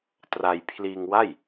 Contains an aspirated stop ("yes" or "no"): yes